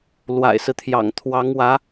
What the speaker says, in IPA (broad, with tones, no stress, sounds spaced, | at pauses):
l w a̰˨˩ ɪ̯ s ɹ̩˦ t̪ʰ j ɑ̰˨˩ ŋ t̪ʰ w ɑ˧˥ ŋ w ä˧˥